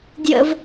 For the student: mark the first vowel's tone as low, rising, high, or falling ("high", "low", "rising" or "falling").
high